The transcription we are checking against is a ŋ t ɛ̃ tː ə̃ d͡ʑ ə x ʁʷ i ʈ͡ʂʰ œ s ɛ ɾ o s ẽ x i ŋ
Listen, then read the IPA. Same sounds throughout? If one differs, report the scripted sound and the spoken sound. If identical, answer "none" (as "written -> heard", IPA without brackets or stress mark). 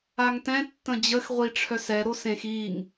none